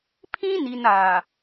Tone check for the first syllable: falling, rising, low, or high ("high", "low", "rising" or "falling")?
high